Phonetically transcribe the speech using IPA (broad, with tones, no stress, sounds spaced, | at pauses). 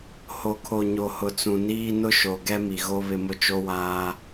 h o˨ kʰ o˨ ɲ o˨ h ʊ˨ t͡s ũ˨ n iː˦ n ʊ˦ ʃ o˨ ɡ ɛ˦ m i˨ ɣ o˦ β ɪ˦ m ʊ˦ t͡ʃ o˦ w aː˦